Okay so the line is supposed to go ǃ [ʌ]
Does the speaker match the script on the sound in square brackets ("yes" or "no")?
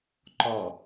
no